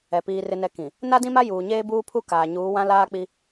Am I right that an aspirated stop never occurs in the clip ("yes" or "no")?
no